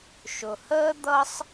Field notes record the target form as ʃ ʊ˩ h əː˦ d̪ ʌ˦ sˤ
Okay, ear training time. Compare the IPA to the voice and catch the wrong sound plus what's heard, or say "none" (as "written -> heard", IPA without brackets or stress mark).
none